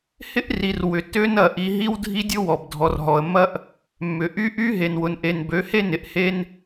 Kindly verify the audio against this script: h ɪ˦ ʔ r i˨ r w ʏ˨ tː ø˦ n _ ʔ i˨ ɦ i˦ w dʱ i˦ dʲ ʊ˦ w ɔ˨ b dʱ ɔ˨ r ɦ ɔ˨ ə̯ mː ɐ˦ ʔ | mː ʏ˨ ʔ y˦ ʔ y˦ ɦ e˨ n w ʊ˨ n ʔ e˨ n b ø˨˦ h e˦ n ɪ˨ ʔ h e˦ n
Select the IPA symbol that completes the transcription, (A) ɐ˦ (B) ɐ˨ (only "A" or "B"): B